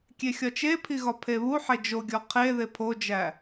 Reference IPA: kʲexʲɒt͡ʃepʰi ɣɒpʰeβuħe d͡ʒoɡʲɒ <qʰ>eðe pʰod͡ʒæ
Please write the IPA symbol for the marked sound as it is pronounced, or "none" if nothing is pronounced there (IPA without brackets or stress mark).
qʰ